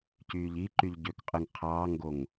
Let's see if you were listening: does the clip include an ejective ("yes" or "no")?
yes